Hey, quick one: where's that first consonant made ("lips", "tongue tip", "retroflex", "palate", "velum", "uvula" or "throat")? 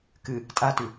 velum